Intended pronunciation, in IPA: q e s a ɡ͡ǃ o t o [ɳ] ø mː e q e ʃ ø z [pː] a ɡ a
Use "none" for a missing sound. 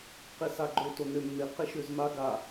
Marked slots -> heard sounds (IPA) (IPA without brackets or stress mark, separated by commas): n, m